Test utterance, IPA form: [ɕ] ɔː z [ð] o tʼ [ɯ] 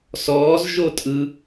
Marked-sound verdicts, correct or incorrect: incorrect, incorrect, correct

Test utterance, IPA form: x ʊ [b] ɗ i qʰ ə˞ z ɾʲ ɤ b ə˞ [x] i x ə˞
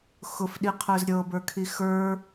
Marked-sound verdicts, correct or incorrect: incorrect, incorrect

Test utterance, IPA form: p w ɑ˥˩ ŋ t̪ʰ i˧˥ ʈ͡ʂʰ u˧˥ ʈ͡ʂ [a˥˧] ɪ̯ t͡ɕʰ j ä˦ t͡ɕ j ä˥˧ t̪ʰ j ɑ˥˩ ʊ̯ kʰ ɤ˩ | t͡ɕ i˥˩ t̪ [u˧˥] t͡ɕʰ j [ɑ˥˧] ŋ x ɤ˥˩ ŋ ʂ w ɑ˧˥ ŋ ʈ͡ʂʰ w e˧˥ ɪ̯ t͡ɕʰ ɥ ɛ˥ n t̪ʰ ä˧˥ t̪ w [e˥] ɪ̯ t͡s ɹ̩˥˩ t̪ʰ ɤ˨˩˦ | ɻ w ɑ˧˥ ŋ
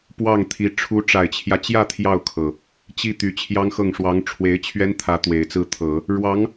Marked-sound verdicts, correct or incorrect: incorrect, incorrect, incorrect, incorrect

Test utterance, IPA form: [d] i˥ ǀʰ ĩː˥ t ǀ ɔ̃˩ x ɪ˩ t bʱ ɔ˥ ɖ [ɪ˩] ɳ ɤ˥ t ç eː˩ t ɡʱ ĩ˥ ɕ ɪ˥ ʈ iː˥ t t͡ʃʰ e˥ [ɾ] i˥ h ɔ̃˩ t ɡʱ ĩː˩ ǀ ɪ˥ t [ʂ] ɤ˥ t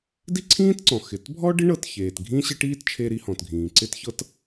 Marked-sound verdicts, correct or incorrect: correct, incorrect, correct, incorrect

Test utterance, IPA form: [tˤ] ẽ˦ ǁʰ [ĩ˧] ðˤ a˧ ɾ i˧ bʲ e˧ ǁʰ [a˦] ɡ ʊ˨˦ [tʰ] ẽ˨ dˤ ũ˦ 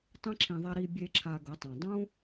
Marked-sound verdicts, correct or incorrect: correct, correct, incorrect, incorrect

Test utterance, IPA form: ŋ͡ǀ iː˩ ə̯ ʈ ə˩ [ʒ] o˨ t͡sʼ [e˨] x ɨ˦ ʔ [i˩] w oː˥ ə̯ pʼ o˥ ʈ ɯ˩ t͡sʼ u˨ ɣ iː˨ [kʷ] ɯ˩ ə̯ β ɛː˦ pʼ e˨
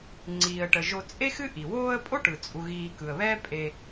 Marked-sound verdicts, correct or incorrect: correct, incorrect, correct, incorrect

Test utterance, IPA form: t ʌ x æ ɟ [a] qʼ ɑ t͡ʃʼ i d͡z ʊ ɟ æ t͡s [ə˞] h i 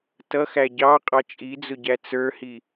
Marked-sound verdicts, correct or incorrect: incorrect, correct

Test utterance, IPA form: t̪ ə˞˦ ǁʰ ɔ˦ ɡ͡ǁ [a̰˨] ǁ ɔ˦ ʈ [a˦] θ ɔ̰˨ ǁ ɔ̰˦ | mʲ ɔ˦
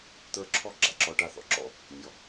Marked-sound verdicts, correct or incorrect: correct, correct

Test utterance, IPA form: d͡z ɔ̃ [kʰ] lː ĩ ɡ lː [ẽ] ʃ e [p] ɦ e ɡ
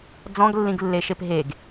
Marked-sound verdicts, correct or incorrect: incorrect, incorrect, correct

